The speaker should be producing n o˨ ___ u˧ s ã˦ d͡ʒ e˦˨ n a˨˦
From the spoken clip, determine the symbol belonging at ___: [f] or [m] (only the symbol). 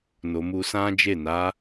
m